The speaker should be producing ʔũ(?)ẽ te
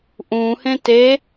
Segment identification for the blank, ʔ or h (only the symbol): h